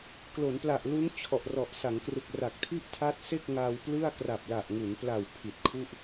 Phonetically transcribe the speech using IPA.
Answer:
klo˩˦npla˨˩ʔlu˦˥n t͡ɕʰɔ˨˩ʔrɔ˨˩ʔ sa˩˦ŋkrɯ˨˩k̚ra˨˩k̚tʰi˥˩ʔ tʰa˦˥t̚ se˥˩k̚ŋa˧w plɯ˥˩a̯ kra˨˩p̚la˨˩ʔŋu˩˦npla˨˩w pʰi˨˩t̚kʰu˥˩ʔ

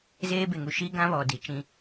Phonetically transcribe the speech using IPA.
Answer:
zeː˦be˨ŋu˨ ʃi˦ɡã˦βɔ˨ di˨t͡ʃĩ˦

